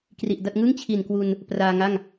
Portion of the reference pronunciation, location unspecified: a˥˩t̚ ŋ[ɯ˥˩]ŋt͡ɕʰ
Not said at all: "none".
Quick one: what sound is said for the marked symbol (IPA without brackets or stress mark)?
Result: ɯ˥˩